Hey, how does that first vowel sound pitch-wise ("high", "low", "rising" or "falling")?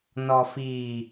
low